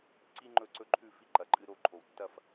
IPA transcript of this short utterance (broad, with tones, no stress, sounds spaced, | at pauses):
ǀ i˧ ŋ͡ǃ ɵ˧˩ ǀ ɵ˥ ǃʰ ʉ˥˧ f i˥˧ ǃ ɐ˩˧ ǃʼ ɨ˧ ɾ o˥˧ ǃʰ o˧˩ w tː ɐ˥˧ f